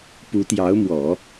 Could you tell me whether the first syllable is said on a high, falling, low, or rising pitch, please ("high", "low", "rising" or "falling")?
rising